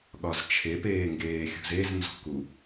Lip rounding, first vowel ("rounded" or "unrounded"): rounded